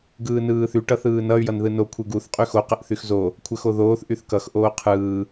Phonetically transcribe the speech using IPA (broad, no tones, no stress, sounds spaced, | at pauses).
ɡ ɯː n ɯː θ y ʈ ʌ θ ɯː n ʌ y̯ j ʌ n ð ɯ n o kʷʰ ɯ ɡ u θ qʼ y x o q ə ʔ θ y x z o | kʷʰ ə x o ð oː θ ʔ y θ k ʌ x ʔ oː qʰ ɯː